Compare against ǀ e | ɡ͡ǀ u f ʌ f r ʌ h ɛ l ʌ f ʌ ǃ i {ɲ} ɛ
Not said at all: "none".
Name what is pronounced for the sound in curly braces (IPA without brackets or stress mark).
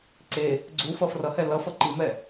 m